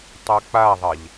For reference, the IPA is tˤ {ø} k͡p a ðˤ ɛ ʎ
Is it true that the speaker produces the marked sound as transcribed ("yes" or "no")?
no